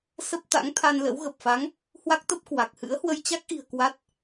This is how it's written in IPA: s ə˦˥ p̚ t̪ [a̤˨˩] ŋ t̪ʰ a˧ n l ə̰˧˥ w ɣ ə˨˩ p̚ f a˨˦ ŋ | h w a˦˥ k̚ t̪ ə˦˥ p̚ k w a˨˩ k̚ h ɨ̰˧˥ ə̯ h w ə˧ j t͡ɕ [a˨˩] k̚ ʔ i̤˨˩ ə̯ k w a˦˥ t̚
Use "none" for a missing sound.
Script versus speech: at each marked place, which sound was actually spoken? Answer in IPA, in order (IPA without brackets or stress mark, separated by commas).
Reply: a̰˧˥, a˦˥